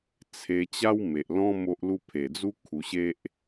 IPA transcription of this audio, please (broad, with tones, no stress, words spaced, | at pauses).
t͡sʰe˧ t͡ɕa˦wme˨ʔlɔ̃˦ mo˦ʔlu˦ pʰe˨˩d͡zu˦ kʰu˧ɕe˦ʔ